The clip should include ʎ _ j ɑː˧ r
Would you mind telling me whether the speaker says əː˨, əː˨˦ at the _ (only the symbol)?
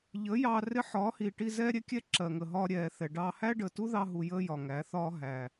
əː˨˦